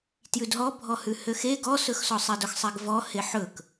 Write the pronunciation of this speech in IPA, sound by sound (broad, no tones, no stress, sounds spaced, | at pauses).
t j ʉ d ɦ ɔ bʱ ɔ h ʉ h ø x e ɡ ɔ s ɵ x s ɔ sˤ ɛ d ɵ x sˤ ɛ ɡ v ɔ h e ħ ɵ k